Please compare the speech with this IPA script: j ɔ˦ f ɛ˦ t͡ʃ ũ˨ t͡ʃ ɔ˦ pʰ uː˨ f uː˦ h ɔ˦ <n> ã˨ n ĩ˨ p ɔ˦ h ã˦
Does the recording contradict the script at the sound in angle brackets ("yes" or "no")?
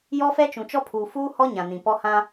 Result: yes